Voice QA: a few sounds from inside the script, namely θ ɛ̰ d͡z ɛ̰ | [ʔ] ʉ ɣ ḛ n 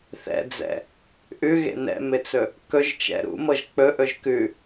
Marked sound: correct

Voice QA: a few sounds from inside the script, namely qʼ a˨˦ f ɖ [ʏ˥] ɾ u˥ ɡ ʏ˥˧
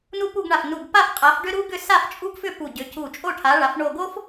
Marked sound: correct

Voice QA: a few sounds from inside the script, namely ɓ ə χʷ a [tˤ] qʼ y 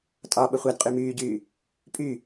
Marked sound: incorrect: d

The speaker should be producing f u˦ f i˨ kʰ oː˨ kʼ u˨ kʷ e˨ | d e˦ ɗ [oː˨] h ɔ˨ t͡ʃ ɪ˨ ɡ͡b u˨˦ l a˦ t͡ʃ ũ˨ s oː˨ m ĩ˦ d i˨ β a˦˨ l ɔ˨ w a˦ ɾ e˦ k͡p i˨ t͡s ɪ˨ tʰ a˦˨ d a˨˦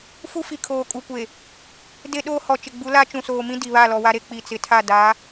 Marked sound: incorrect: oː˦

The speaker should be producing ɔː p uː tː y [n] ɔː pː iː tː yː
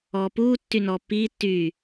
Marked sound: correct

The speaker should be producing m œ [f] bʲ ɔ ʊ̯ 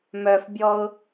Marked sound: correct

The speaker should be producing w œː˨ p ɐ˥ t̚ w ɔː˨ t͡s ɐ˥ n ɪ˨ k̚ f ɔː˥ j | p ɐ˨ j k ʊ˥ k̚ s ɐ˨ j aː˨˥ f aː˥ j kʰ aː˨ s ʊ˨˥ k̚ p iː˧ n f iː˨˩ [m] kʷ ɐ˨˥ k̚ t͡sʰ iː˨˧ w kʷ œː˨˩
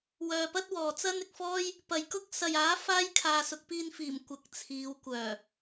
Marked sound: correct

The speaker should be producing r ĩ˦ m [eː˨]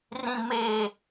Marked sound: incorrect: eː˦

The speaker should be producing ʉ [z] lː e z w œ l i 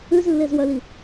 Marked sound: correct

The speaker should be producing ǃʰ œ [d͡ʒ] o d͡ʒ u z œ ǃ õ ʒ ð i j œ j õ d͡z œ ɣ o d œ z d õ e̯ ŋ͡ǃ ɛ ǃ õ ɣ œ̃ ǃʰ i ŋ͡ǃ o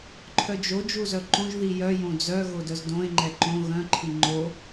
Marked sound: correct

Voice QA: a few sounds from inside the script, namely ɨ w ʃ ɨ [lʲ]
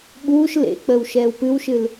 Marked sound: incorrect: l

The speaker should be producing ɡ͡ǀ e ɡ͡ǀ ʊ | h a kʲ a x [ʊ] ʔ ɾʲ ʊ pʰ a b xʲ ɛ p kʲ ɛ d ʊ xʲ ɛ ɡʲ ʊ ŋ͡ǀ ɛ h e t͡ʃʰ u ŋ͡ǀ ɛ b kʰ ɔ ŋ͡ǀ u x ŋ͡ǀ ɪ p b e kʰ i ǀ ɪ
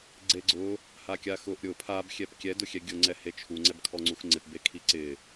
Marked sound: correct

